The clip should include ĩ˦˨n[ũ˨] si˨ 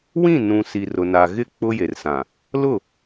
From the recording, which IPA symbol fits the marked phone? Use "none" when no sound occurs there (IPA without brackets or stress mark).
ũ˨